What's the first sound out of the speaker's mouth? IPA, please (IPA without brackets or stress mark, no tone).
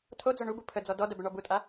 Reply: tʰ